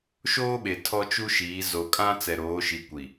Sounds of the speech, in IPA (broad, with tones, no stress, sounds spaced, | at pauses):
ʃ oː˦ ɓ e˨ tʰ ɔ˦ t͡ʃ u˦ ʃ iː˨˦ z o˨ kʼ ã˦ t͡s ɛ˨ ɾ oː˨˦ ʃ i˨ kʷ i˨